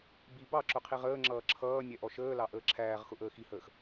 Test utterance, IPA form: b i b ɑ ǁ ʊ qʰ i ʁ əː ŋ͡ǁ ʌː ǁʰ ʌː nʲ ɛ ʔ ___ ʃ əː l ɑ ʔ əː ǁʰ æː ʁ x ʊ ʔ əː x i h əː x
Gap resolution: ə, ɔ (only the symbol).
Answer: ɔ